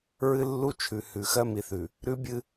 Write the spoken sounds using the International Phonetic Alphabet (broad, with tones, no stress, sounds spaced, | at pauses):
ɹ ɨ˦ lː u˦ t͡ʃʰ ʉ˨ h ʉ˨ x ɜ˦ m i˨ θ ʉ˨ | ɾ ʉ˦ bʲ ɨ˦